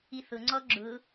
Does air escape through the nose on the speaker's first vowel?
no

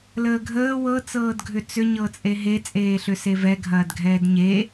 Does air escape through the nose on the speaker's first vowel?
no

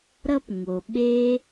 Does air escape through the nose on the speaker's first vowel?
no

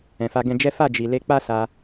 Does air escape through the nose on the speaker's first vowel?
yes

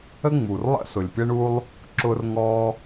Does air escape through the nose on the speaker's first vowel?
no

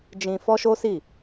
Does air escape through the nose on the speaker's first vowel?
yes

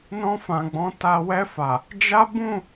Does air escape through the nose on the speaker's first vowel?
yes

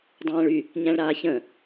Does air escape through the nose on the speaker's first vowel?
yes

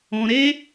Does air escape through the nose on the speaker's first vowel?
yes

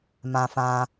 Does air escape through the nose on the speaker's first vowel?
yes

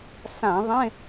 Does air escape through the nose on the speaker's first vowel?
yes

